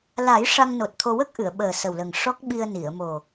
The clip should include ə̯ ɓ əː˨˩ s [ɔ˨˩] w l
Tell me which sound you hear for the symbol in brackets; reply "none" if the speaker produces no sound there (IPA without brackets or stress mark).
ə˨˩